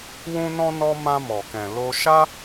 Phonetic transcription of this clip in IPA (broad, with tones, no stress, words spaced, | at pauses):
wũ˧nɔ̃˧nɔ˧ mã˧mɔ˨kɛ̃˨ lo˧ ʃa˦